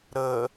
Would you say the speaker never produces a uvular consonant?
yes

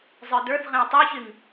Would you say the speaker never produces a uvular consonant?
no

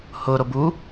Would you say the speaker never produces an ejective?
yes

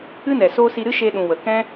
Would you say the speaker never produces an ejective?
yes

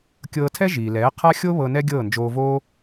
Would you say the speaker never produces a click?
yes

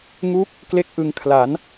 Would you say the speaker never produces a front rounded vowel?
yes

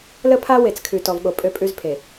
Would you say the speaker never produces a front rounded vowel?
no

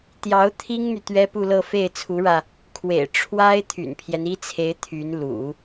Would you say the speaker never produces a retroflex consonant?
no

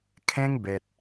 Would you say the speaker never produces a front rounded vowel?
yes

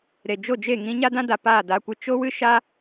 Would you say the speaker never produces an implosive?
yes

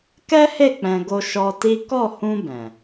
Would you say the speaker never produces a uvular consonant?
yes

